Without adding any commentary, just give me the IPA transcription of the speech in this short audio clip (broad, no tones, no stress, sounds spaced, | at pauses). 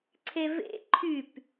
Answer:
ǀʰ e v ḛ ǃʰ y p